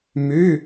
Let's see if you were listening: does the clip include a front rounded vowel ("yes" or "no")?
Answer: yes